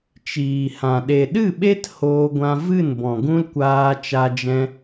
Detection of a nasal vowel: present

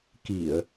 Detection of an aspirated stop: absent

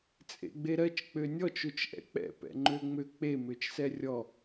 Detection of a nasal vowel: absent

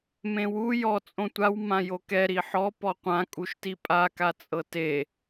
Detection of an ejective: present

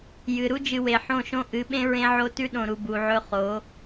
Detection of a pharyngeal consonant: present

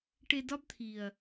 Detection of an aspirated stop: present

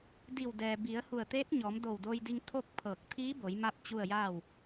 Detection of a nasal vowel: absent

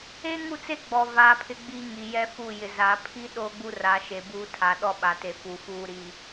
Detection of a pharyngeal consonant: absent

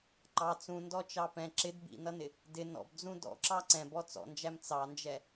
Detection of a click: present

